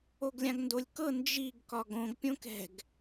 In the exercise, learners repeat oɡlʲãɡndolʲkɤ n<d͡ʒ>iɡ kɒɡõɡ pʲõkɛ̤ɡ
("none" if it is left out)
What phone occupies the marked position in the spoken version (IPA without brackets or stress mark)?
d͡ʒ